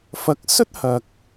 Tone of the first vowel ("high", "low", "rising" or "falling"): rising